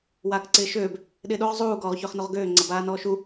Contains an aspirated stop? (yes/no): no